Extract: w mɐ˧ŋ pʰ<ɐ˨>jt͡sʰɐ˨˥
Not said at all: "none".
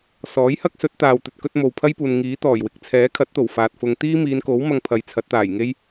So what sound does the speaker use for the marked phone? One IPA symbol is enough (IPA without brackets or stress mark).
ɐ˨